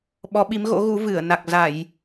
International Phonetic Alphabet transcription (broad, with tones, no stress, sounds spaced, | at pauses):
ɓ ɔ˨˦ ɓ i˨˦ m ɣ o̰˧˥ ɣ u˨˦ v ɨ˧˩ ə̯ n a˨˩ k̚ z a˧˩˨ j